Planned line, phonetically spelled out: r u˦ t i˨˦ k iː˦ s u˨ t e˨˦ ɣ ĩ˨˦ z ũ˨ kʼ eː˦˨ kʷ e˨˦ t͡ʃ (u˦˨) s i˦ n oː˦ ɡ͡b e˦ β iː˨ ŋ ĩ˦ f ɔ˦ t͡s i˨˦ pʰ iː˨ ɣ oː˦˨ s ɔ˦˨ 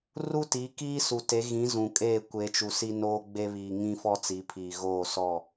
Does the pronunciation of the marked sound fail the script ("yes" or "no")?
yes